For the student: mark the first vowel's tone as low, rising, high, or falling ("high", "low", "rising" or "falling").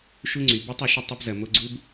high